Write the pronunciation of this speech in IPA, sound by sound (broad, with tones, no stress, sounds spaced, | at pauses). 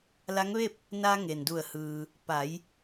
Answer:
l a˧˥ ŋ ʋ e˥˨ p̚ | n a˧ ŋ e˩ n d u˧˩ ə̯ h ɯː˩ | p a˩˧ j